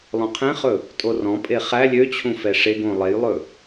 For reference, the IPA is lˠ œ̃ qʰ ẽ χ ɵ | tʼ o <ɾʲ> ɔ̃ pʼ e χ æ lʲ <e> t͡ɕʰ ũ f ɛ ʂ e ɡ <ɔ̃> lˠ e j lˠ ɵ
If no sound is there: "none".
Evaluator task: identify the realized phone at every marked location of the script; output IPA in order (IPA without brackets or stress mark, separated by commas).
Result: r, ø, õ